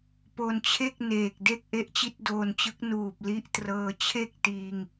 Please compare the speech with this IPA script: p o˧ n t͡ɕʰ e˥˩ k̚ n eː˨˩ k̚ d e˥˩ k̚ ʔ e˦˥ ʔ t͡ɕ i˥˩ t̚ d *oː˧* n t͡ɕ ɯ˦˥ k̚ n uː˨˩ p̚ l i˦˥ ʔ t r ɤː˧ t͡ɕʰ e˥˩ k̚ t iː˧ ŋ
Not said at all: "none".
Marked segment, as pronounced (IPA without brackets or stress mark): oː˧